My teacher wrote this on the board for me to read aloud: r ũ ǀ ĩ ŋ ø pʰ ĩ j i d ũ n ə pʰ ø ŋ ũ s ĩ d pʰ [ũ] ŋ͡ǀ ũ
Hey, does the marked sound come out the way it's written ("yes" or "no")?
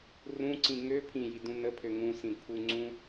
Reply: no